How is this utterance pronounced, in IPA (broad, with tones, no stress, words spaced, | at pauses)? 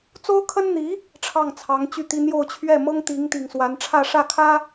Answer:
t͡so˥ʊ̯kʰə˥nn̪i˧˥ | ʈ͡ʂʰɑ˥˩ŋt͡sʰɑ˧˥ŋt͡ɕy˥˩t̪i˥ n̪jo˥˧ʊ̯t͡ɕʰɥɛ˥˩ mɤ˥ŋt̪i˧˥ŋ t̪i˨˩ŋswa˧˥n ʈ͡ʂʰä˥˧ʂä˥˩kʰä˥